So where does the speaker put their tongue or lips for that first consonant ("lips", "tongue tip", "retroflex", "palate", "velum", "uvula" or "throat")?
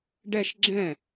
retroflex